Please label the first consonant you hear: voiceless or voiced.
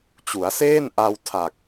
voiceless